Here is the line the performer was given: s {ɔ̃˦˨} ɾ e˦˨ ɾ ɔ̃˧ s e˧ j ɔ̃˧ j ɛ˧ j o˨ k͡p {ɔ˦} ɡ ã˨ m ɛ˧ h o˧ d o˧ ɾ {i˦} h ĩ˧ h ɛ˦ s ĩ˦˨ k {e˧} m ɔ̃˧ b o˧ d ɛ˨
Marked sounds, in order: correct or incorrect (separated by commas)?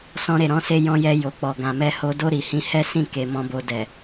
incorrect, incorrect, incorrect, incorrect